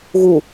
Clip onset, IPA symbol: ɣ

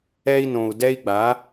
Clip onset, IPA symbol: ɛ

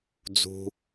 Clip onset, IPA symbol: d͡z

